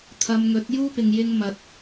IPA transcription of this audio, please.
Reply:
t̪ʰ ɐ˧ m ŋ ɵ˨˥ t̚ j uː˥ p ɪ˨ ŋ j ɪ˧ ŋ m ɐ˨ t̚

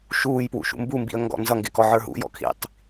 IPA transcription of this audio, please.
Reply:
ʃ uː j p w ṵ ʃ ṵ m b u m b ḭ ə̯ ŋ ɡ ɔ̰ n z ʌ ŋ ɡ ɪ k ɔ ʕ ə˞ ɦ ṵ j ɔ̰ kʰ ḭ tˤ

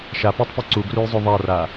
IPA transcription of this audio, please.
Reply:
ʃ a p œ tˤ p ɛ ǀ u ɡ r u j zˤ o ðˤ a r a

